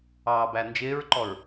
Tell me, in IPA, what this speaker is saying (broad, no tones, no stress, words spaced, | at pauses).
ɑːbænd͡ʒɪːɹǃɔɹ